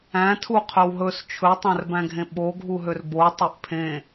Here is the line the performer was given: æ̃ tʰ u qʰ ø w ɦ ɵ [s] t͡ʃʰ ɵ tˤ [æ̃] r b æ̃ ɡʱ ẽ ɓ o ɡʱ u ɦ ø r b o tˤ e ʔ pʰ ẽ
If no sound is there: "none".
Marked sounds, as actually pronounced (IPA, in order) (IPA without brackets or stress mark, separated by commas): s, æ̃